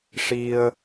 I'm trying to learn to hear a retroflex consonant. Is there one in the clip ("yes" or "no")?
yes